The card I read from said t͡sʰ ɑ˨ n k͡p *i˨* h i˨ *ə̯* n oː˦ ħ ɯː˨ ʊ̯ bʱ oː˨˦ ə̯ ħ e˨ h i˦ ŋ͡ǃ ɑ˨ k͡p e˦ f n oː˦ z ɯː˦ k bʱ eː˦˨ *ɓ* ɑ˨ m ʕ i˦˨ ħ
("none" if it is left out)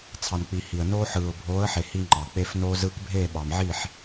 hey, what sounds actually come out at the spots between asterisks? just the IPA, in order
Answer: i˨, ə̯, ɓ

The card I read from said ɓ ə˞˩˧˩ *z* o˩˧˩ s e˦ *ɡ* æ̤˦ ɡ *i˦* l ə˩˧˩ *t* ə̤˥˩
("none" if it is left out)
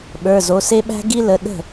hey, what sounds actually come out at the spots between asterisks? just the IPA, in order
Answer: z, ɓ, i˦, ɗ

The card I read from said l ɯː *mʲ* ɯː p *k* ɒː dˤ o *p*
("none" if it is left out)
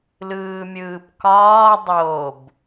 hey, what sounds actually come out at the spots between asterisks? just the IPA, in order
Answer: mʲ, k, b

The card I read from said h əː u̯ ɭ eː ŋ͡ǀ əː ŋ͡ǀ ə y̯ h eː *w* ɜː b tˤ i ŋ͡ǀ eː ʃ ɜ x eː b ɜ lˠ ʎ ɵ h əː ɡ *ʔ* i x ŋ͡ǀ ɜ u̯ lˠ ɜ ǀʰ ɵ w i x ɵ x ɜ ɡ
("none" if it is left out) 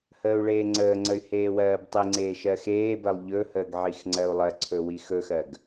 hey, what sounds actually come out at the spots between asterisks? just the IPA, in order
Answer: w, ʕ

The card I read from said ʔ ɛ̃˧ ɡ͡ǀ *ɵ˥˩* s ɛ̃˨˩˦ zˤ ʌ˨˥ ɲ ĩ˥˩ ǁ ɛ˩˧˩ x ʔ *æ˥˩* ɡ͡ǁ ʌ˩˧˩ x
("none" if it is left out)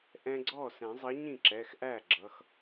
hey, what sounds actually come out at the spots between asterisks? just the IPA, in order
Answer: ɔ˥˩, æ˥˩

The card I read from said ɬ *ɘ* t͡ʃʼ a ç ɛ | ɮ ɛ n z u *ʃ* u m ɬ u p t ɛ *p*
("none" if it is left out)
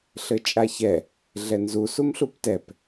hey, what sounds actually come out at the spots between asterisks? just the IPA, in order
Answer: ɘ, s, p

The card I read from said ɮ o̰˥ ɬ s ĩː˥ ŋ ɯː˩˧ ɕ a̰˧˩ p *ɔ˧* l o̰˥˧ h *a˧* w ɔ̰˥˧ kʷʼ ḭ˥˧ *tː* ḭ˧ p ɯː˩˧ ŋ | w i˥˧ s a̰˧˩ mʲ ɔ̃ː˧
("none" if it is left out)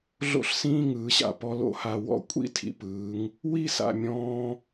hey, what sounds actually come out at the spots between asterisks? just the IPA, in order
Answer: ɔ˧, a˧, tʰ

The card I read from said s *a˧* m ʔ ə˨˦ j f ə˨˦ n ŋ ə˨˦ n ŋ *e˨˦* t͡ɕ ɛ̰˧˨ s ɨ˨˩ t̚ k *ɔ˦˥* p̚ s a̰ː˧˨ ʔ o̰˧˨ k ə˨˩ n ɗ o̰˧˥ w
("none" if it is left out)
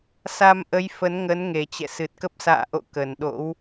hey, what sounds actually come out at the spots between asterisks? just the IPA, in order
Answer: a˧, e˨˩, ə˦˥

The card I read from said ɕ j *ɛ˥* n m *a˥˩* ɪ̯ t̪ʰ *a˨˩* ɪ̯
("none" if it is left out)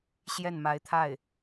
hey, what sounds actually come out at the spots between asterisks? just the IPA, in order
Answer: ɛ˥˩, a˧˥, a˥˩

